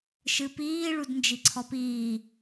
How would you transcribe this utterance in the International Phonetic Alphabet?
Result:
ʃ ɨ p iː ɭ u d n d͡ʒ i ǀʰ ɔ p iː

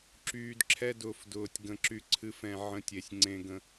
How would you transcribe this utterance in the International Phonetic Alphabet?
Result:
ǁ yː˨ d ǁʰ ɛ˦ d ʊː˨ f d ʊː˨ tʲ ɡ ə̃˨ ǁ y˨ ǀʰ ɨ˨˦ f ɛ̃˨ ʕ ə̃˦ tʲ e˨ sʲ ŋ͡ǀ ẽ˦ ɡ ə̃˦

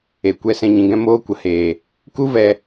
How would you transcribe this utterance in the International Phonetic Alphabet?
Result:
e˨ kʷ ɛ˧ s ɛ̃˧ ɲ ĩ˨ ɡ ɛ̃˦ m oː˦ kʷ ə˨ h eː˨ | k u˦ v ɛ˧

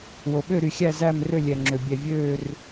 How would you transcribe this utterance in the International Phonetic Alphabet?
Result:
w o˩ ɓ ø˦˨ ɾ y˩ xʲ æ˦˨ z æ˦˨ m r ø˦˨ lʲ ɛ˩ ŋ͡ǁ ø˩ bʲ ɛ˩ vʲ øː˦˨ r

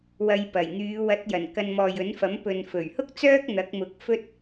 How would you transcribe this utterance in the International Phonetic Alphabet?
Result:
w ɐ˧ j p ɐ˨˩ j n̪ yː˨˧ w ɐ˨˥ t̚ j ɐ˨˩ n k ɐ˧ n m ɔː˨ j ɵ˨˥ n f ɐ˨˥ m p ɵ˨ n f ɵ˨˩ ɥ h ʊ˥ k̚ t͡s œː˥ k̚ n̪ ɐ˨˥ k̚ m ʊ˨ k̚ f ɵ˥ t̚

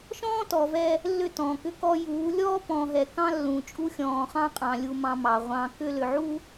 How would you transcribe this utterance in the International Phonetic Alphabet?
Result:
ʃ ɔ̃ː˦ t ɔ˨ v ɛ˦ | lː ʏ˦˨ t ɔ̃ː˨ k ʏ˦ k ɔ˦ j uː˨˦ lʲ ɔː˦ p ɔ̃˨ ɦ ɛ˨ k ɑ̃˦ lː ũ˨ t͡ʃʼ u˦ xʲ ɔ̃ː˨ χ ɑ̃˦ qʼ ɑ̃˨ lʲ u˦ m ɑ̃˦ m ɑ˨ ʁʷ ɑ̃˦ k ʏː˦ l ʏ˨ ʕ u˦

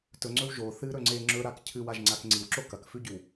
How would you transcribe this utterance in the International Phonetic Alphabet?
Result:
t ɵ ŋ͡ǀ ɵ w ʒ o θ ɨ ɾ ɵ ŋ͡ǀ e ŋ͡ǁ ɵ ɾ a k cʰ ɨ w a ʒ ŋ͡ǀ a k ŋ͡ǀ i w ǁ o k ɐ k f ʉ ɟ ʉ w

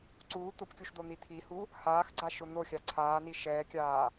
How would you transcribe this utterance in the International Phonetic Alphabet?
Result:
ǀ uː t̪ ʊ p kʲ u ʃ d̪ o n̪ i t̪ʰ i h u | h aː x ɡ͡ǀ a ʃ ʊ n̪ o xʲ a ǀʰ aː n i ʃ ɛː kʲ aː

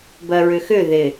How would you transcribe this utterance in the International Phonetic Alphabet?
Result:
b ɜ ɹ ʏ x ʏ ð ɪ

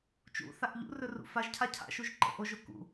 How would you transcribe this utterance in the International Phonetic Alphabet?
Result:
t͡ʃ ṵ θ a ʔ ʎ ṵ r ɵ r ṵ f a ʒ cʰ a cʰ a̰ ʃ u ʒ ǃ ə̰ ʔ o ʒ o k ṵ

